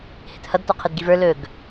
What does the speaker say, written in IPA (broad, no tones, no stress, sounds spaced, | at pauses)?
h ɪ t h ʌ d t ɔ qʰ ɪ d ɡ i v ə˞ l ɵ ɡ